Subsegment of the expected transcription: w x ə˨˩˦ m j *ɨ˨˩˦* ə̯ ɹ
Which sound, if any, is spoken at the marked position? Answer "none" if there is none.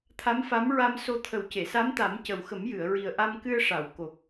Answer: ɨ˨˩˨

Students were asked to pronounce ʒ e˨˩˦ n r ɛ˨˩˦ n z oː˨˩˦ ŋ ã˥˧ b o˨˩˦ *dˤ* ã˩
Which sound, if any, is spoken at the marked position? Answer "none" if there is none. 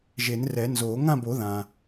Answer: ð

